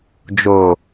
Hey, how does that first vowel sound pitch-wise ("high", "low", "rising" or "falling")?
low